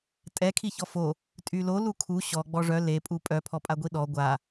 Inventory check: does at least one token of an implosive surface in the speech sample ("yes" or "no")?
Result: yes